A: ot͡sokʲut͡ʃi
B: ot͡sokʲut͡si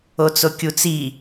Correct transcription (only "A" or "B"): B